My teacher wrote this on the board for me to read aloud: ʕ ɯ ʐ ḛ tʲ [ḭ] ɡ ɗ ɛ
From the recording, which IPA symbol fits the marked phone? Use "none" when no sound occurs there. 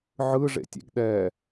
ḛ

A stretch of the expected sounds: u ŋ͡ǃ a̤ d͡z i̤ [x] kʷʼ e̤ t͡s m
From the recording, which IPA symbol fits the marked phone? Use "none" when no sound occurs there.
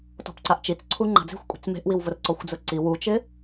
xʷ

